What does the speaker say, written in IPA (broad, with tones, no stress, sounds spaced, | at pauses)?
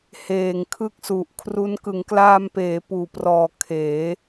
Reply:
h eː˨˩ ŋ kʰ ɯ˦˥ k̚ s u˨˩ ʔ kʰ r u˦˥ n k ɯ˩˦ ŋ k l aː˧ m p eː˩˦ p uː˨˩ p r ɔː˨˩ kʰ eː˩˦